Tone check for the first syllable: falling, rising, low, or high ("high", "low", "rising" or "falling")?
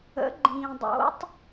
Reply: rising